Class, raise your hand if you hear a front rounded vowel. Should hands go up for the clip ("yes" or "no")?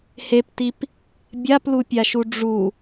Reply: no